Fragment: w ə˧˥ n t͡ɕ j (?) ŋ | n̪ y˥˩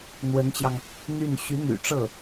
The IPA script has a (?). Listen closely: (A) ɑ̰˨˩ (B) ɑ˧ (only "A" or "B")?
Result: B